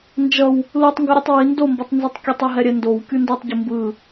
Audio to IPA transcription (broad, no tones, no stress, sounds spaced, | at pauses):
n d͡ʒ ʌ w | l u tˤ ŋ ɡ ʌ ɾʲ ɯ tˤ w i n d o m b ʌ tˤ n z ɯ tˤ kʲ u tˤ ɛ ɦ ɛ ɾʲ ɛ n d o w kʲ u n d u tˤ ɟ ɯ m b ɯ